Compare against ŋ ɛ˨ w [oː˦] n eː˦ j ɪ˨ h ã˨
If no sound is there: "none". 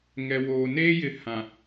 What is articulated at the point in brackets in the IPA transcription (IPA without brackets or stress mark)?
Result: oː˨